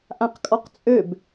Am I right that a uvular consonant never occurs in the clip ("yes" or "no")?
no